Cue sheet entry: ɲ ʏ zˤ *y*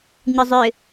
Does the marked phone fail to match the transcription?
yes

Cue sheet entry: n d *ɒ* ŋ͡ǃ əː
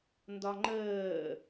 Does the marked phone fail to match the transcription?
no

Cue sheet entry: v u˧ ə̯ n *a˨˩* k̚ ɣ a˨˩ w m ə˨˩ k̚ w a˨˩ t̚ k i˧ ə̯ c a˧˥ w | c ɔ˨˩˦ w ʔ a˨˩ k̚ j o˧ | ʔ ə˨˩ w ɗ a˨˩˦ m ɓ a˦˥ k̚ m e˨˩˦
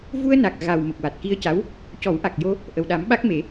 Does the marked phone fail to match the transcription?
no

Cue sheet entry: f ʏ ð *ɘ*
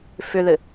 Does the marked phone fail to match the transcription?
no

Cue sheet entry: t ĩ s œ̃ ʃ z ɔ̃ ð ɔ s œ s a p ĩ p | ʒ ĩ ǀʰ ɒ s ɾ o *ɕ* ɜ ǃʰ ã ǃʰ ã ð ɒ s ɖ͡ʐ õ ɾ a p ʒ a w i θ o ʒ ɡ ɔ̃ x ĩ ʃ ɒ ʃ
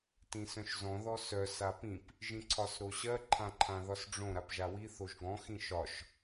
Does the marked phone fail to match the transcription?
no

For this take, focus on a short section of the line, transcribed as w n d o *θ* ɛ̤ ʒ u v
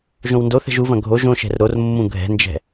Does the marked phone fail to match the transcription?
no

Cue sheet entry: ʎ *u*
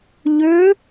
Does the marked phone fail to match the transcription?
yes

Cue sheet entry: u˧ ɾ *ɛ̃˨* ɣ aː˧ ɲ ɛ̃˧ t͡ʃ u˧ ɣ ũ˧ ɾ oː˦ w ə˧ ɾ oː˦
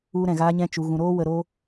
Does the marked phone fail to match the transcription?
no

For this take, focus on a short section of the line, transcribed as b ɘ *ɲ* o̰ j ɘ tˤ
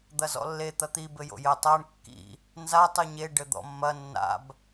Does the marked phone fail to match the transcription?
yes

